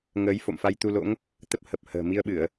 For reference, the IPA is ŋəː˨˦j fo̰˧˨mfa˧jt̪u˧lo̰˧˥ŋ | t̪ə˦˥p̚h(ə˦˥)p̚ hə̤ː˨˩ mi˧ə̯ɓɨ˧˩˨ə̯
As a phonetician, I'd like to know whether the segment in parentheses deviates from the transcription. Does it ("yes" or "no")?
yes